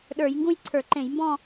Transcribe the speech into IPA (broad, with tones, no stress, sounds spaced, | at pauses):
ɗ ə˞˧˩˧ j ŋ ɡ ũ˥˧ j ǀʰ ə˞˧˩˧ ǃ ẽ˧˩˧ j m b ɔ̃˥˧